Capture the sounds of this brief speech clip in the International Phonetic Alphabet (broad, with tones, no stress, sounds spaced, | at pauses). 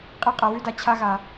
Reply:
qʼ e˥ qʼ ɐ˧ w ʉ˥ d a˧ t͡ɕʰ a˥ ɣ a˧